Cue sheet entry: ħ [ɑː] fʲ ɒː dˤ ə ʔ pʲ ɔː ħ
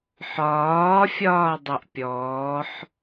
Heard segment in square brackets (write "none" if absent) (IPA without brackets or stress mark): ɒː